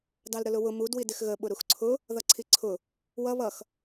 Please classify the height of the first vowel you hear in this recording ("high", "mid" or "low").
low